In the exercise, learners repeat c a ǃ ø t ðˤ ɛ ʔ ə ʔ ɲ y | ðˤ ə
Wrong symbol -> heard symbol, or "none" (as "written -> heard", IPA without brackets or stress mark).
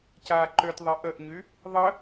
none